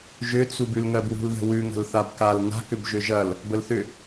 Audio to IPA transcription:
ʒ ʏ t͡s u b ʉ l ŋ ɜ b w ṳ l ð ə̤ w ʉ ŋ ə̤ l θ a b k a l n a̤ k ʏ b ʒ ʏ ʒ ɐ l | b ə l θ ʏ

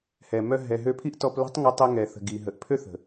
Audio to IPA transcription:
h ɛ˨ m œ˧ ɦ ɛ˨ ɦ ø˧ pʰ i˦ ʔ t ɔ˧ p l ə̤˦ tˤ ŋ ə˧ tˤ ɛ˧ ŋ ɛ˨ θ ə̤˨ ɡ i˨ ɦ ə˨ ʔ pʰ ø˦ θ ə̤˨

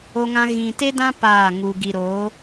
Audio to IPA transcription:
o˧ ŋ ã˧ ɣ ĩ˨ t e˦ d ã˦ p aː˦˨ ŋ u˧ ɡ i˨ ɾ oː˨˦

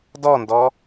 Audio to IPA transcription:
d ɔ n d ɔ

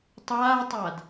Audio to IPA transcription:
tˤ aː tˤ a d

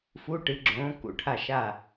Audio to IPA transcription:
f u˧˥˧ ʈ ɨ˨˥ ɡ͡ǁ õː˨˥ k ṵ˧˩ ʈʰ a˥˩ ʃ a˥˩

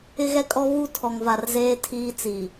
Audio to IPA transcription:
ɪ˦ ɣ ɛ˦ kʼ ɔ˦ β u˦ tʰ ɔ˨ ŋ v a˨ r z eː˦ tʰ iː˦ t͡s i˨

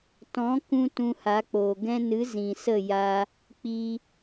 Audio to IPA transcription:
t ɔ̃˨˦ k ũ˦ t ũ˧ h a˨˦ k͡p oː˨ ɡ ɛ̃˧ n ɨ˨˦ z ĩ˨ s ə˦˨ j a˧ | k͡p i˧

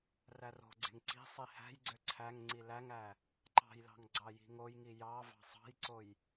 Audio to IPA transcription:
r æ r o̤ ɡ͡ǀ e̤ ŋ ǀ i̤ sˤ i h æ̤ j ɡ͡ǀ ø ǀʰ æ ŋ ŋ͡ǀ i l æ ŋ æ | ǃ ɑ̤ j l ɑ̤ ŋ ɡ͡ǀ ɑ j i̤ ŋ o j ŋ i j ɑ v ɑ̤ sˤ ɑ̤ j ǀ o j

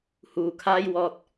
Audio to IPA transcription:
h uː˨ kʰ aː˥ j w ɔː˧ t̚

